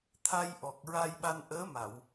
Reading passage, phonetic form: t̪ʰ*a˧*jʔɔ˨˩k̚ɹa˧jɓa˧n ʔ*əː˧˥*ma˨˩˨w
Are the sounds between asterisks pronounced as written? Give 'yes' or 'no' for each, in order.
yes, yes

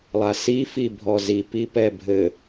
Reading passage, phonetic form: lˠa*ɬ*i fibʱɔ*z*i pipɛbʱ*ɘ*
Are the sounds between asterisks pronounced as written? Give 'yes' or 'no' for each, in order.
no, yes, yes

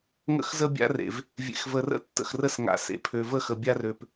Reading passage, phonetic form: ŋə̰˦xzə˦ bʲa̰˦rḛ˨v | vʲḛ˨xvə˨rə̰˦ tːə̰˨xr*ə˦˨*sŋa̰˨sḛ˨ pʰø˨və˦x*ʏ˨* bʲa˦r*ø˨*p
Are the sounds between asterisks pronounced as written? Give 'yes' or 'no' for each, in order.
yes, no, yes

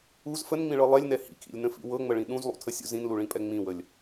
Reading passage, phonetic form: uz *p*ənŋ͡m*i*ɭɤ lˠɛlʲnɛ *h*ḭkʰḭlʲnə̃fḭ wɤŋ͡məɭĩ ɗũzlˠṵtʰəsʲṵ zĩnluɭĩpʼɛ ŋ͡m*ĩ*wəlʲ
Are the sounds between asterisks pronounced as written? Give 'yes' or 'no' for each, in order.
no, no, yes, yes

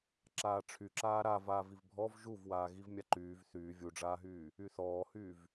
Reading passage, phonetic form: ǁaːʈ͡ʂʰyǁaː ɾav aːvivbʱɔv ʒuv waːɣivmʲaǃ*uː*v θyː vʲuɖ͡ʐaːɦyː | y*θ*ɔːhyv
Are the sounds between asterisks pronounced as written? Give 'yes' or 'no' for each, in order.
no, yes

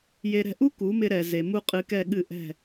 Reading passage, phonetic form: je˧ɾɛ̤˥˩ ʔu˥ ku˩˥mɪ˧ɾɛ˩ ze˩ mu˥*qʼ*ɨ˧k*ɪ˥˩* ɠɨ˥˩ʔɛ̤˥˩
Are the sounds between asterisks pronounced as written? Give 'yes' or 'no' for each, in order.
yes, no

